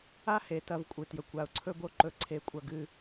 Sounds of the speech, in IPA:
a˦ h e˨ t ɐ˦ v kʷʼ ɨ˨ t j ɵ˨ kʷ a˨ ʊ̯ ǀʰ ɵ˦ b o˦ ǃ ɵ˦˨ ǀʰ e˦˨ kʷʼ ɐ˦ ɡ ɨ˦

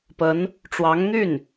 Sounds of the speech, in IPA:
p ə˧˥ n | ʈ͡ʂ w ɑ˧˥ ŋ n̪ y˥˩ n

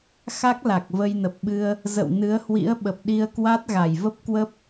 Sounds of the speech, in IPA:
x a˦˥ k̚ l a˨˩ k̚ v ə˧ j n ə˨˩ p̚ ɓ ɨ˧ ə̯ | z ə̰˧˨ w n ɨ˨˦ ə̯ h w ḭ˧˥ ə̯ ɓ ə˨˩ p̚ ɗ i˧ ə̯ k w a˦˥ t̚ ɣ a˧˩ j v ə˦˥ p̚ k w ə˦˥ p̚

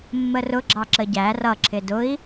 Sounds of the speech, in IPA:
mː ə r ʊ ɡ͡ǁ ɑ ǁ ə ɟ æ r ʌ ǁʰ ɪ d ʊ i̯

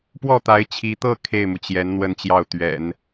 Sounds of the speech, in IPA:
p w ɔ˥˩ t̪ a˧˥ ɪ̯ t͡ɕʰ i˧˥ t̪ ɤ˥˧ kʰ e˥˩ ɪ̯ m u˩ t͡ɕ j ɛ˧˥ n n̪ w ə˥˧ n t͡ɕ j ɑ˥˩ ʊ̯ t̪ ɥ ɛ̰˨˩˦ n

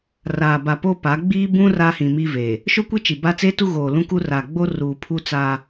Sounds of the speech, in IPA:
r aː˨ b a˨ p o˦ p a˨˦ ɡ͡b iː˦ b ũ˦ r a˦ h ĩ˨ m i˦ v e˨ | ʃ o˦ kʷ i˦ t͡ʃ i˨ b a˦ t͡s e˦ t u˦ ɣ oː˨ l ũ˦ k u˦ r a˨ ɡ͡b o˦ r uː˨ pʰ u˦ t͡s a˦

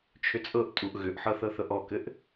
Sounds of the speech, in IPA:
t͡ʃʰ ʏ t͡sʼ ɤ ʔ tʼ u ʔ ɣ ʏ ʔ ħ ɤ θ ɤ θ ɤ ʔ ɔ k ɘ ʔ

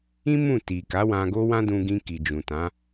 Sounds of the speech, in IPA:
ĩ˦ m ũ˦˨ t i˨ k a˨˦ w ã˧ ɡ o˦ w ã˦ d ũ˧ ɡ ĩ˧ k i˨ d͡ʒ ũ˨ t ã˨˦

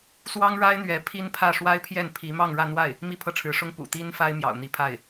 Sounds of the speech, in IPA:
s w ɑ˥ ŋ ɻ a˥ ɪ̯ n̪ ɥ ɛ˧˥ pʰ i˥ n pʰ ä˥˩ ʂ w a˥ ɪ̯ pʰ j ɛ˥˩ n pʰ i˧˥ m ɑ˥˧ ŋ ɻ ä˥˧ n̪ w a˥˩ ɪ̯ | m i˥˧ pʰ ɤ˥˩ ʈ͡ʂʰ ɻ̩˧˥ ʂ ʊ˥ ŋ p ṵ˨˩ t̪ i˥ n f a˥ ɪ̯ m j ɑ̰˨˩ ʊ̯ n̪ i˧˥ pʰ a˥˩ ɪ̯

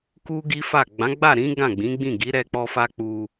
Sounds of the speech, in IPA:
k u˦ ɡ i˦ f a˦˨ ɡ͡b ã˨˦ ɡ͡b a˦˨ ɾ ĩ˨˦ ɡ ã˦˨ ɡ͡b ĩ˨˦ ɡ͡b ĩ˦˨ ɡ i˨˦ ɾ ɛ˧ k͡p ɔ˧ f a˦ k͡p u˧

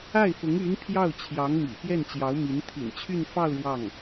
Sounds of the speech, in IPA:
a˥˩ ɪ̯ f ʊ˧˥ ŋ y˧˥ n pʰ j ɑ˥˩ ʊ̯ t͡ɕʰ j ɑ˧˥ ŋ m ḭ˨˩ p j ɛ˥˩ n t͡ɕ j ɑ˧˥ ʊ̯ m i˧˥ n t̪ʰ ḭ˨˩ n t͡ɕʰ y˥˧ n f ɑ˥˧ ʊ̯ ɻ w ɑ˥˩ ŋ

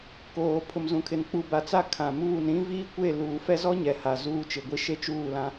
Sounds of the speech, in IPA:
k oː˨ pʰ ʊ˨ m z ũ˨ kʰ ɪ˨ n k͡p u˨ b a˨ t͡s a˦ kʰ ã˨ m uː˦˨ n ɾ ĩ˦ v iː˦ kʷ e˦˨ l uː˨ f ɛ˦ z ɔ˦ ɲ ɛ˨ h a˨ z uː˦ t͡ʃ ɪ˨ ɡʷ i˦ ʃ e˦ t͡ʃ uː˦˨ l ã˦

